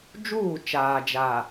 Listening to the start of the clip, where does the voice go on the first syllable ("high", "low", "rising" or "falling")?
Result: falling